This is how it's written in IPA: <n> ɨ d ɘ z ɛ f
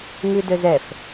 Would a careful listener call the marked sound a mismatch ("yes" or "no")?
yes